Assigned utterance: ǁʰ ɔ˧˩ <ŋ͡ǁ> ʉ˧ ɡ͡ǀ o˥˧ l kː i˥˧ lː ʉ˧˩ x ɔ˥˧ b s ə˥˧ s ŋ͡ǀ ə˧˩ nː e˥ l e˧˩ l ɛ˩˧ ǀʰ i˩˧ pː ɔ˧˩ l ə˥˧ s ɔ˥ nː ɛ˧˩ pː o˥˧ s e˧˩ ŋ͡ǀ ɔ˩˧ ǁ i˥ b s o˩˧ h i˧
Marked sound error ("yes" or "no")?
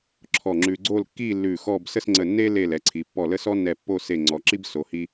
no